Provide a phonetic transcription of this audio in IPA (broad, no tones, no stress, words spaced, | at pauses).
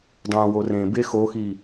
dˤõ worẽ be xoxi